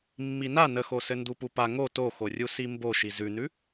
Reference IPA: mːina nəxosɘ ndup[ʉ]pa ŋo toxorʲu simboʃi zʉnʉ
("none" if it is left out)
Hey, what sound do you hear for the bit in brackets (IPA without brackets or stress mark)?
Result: u